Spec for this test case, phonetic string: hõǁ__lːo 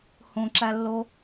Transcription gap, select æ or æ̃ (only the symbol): æ